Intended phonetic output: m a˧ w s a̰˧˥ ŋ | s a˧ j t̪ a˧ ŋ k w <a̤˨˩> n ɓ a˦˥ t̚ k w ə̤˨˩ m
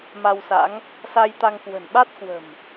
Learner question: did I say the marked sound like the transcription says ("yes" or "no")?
no